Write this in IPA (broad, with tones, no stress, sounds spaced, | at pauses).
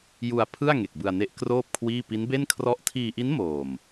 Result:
j u˧ a̯ pʰ ɯ˥˩ a̯ ŋ e˨˩ k̚ b ɯ˧ a̯ n e˦˥ ʔ k r oː˥˩ p̚ kʰ w iː˥˩ p i˦˥ n b e˥˩ n kʰ r ɔ˥˩ ʔ tʰ iː˧ ʔ i˦˥ n m oː˨˩ m